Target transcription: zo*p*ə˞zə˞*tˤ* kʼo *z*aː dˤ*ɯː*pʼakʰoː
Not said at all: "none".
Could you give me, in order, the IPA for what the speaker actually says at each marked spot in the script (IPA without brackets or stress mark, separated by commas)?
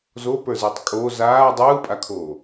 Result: p, tˤ, z, ɯː